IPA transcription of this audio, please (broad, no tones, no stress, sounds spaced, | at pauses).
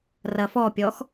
r ɐ f ɔ pʲ ɔ x